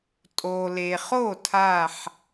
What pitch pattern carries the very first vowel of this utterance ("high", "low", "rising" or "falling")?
low